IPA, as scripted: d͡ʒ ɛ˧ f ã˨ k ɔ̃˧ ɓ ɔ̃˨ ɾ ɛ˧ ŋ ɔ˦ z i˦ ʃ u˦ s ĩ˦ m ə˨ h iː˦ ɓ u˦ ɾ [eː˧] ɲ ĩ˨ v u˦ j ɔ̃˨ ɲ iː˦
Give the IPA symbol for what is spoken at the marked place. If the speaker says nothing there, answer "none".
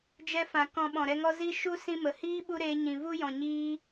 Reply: eː˧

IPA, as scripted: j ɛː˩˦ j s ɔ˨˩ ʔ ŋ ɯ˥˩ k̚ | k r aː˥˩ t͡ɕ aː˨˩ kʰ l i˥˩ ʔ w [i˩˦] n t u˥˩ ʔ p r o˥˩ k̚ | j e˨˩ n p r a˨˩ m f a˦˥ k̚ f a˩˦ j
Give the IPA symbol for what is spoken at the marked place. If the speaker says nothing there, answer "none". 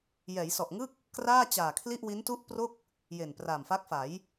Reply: i˦˥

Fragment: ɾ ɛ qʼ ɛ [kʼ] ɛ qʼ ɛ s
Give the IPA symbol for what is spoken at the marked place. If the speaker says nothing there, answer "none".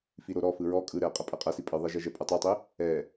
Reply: pʼ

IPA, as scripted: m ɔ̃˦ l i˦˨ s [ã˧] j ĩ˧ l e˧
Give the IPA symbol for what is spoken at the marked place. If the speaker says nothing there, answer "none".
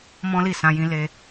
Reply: ã˧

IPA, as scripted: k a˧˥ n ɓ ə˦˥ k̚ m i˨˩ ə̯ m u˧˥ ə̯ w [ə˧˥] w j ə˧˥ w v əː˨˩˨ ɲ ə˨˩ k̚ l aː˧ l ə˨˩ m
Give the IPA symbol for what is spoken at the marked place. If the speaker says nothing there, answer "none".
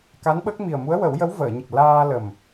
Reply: ə˨˩˦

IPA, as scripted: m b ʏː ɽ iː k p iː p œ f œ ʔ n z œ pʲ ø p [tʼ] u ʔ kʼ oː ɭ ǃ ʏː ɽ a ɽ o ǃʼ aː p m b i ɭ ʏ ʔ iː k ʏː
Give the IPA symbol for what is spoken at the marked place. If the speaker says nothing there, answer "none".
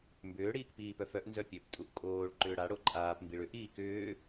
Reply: tʼ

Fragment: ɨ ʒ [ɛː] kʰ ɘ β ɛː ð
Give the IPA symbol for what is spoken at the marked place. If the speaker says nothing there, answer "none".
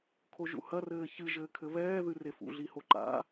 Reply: ɘː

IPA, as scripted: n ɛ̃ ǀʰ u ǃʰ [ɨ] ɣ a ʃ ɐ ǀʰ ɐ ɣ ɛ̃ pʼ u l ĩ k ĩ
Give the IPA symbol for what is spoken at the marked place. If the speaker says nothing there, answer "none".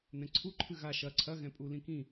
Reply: ɨ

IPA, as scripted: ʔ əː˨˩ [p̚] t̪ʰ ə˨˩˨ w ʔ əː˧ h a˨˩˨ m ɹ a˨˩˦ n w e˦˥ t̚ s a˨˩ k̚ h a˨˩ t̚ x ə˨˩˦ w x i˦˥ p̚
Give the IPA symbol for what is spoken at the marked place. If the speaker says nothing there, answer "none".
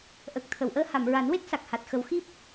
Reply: k̚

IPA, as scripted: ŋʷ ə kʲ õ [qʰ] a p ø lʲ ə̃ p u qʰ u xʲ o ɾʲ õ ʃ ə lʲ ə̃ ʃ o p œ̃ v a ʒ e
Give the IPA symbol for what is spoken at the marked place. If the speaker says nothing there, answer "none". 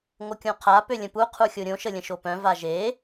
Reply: qʰ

